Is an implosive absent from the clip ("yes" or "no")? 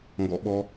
no